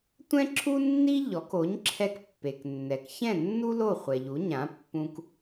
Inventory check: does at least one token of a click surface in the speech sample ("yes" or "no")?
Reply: yes